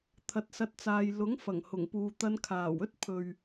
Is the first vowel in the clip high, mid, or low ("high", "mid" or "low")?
low